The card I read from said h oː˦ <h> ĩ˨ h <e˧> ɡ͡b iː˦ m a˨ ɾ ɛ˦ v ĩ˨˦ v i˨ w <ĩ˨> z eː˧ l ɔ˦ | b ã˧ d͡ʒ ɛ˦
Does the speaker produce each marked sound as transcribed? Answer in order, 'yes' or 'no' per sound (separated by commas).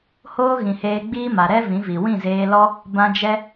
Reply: no, no, no